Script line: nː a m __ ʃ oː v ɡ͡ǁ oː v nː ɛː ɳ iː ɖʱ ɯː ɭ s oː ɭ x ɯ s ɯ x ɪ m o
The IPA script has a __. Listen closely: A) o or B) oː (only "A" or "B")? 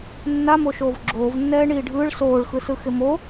A